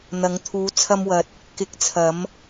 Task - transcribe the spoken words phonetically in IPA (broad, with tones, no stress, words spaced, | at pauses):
n̪ɐ˨˧ŋ t̪ʰuː˨˧t͡sʰɐ˧mwɐ˨t̚ | kɪ˨˥k̚t͡sʰɐ˨˧m